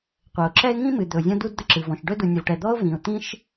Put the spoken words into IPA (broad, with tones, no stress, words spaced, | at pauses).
qʷɜ˩ʊ̯ǁɛ˥ɪ̯ ŋĩ˥mɨ˩ d̪ɵ˩ʊ̯zʲɔ̃˥du˥dd̪ə˥ ǁɨ˩vɔ̃˩ʃɖɵ˥ du˩ nʲɵ˩vʈɛ˩d̪ɔ˥ʊ̯ vĩ˩ʊ̯t̪ĩ˥ʃ